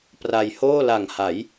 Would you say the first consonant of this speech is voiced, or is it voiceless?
voiceless